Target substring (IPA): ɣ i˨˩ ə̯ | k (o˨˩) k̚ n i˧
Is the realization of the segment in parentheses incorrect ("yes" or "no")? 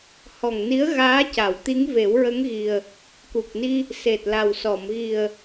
yes